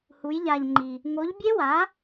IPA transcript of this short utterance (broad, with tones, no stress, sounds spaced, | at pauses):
h u˨˥ j ʎ a˧ ʎ ŋ͡ǃ i˧ | ŋ o˨˥ ʎ bʲ e˦˥ w a˨˥